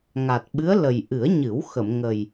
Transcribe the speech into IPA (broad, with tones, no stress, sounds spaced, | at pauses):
ŋ a˨˩ t̚ ɓ ɨ˧˥ ə̯ l ə˨˩ j ʔ ɨ˨˩˦ ə̯ ɲ ɨ˨˩˦ w x ə˨˩˨ m ŋ ə˨˩ j